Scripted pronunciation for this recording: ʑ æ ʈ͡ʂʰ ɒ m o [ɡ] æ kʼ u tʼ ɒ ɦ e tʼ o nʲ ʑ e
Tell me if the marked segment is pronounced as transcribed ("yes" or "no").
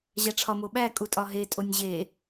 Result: no